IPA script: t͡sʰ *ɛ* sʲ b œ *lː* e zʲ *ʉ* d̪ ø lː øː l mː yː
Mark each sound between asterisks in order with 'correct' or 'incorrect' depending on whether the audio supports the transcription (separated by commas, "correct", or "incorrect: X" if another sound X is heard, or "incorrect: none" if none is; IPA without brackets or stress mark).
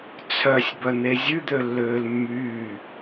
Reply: incorrect: œ, incorrect: n̪, correct